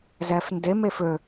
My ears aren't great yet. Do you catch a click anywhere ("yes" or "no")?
no